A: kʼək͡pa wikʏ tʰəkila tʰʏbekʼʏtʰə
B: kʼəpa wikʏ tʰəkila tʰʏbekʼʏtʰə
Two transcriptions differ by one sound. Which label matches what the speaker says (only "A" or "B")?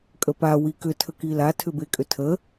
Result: B